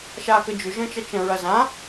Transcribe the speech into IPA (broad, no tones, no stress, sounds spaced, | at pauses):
ʃ a k ə d͡ʒ ʏ ʒ ə̃ t͡ʃ ɐ t͡ʃ ə̃ ɹ ɐ z ã